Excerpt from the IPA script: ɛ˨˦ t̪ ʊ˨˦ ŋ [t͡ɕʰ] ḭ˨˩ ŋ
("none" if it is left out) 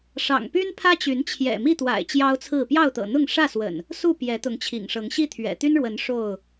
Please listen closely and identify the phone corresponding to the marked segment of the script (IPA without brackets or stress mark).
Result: t͡ɕʰ